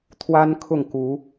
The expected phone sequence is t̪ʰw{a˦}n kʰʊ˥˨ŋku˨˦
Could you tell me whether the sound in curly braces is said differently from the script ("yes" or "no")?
no